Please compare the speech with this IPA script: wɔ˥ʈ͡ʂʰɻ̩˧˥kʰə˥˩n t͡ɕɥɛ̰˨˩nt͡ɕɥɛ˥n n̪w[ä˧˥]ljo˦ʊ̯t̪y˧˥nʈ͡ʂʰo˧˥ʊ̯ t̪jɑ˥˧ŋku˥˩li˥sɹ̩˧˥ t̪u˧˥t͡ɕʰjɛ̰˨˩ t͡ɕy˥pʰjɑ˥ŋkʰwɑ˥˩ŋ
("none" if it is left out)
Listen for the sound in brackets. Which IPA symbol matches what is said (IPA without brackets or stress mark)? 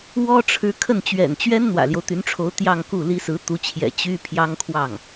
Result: ä̰˨˩